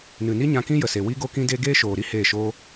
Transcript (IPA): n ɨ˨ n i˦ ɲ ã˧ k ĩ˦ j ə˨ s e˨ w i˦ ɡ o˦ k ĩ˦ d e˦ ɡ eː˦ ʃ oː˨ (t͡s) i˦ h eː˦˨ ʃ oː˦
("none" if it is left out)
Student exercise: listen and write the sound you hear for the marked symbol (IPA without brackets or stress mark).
ɾ